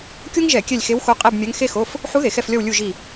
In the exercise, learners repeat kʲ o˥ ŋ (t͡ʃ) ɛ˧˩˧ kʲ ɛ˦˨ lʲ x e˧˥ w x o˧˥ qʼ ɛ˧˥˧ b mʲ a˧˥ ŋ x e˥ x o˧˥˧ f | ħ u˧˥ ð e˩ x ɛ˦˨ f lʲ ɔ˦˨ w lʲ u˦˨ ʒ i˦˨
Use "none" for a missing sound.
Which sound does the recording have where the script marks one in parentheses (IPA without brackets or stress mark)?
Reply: ʒ